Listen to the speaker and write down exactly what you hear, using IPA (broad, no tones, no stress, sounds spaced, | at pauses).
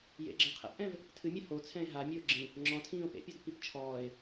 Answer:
j ḛ ɡ͡ǁ ẽ qʰ ɛ̰ p ʔ ɛ̃ v | tʰ ɨ mʲ ɘ h o t͡sʰ ɛ̃ e̯ ɦ a mʲ ɨ o̯ ɡ͡ǁ ĩ | ŋ͡ǁ ɔ̃ tʰ ĩː o̯ p ḛ pʲ ɔ d p i p t͡ʃʰ ɔː e̯